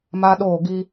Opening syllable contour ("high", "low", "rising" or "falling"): high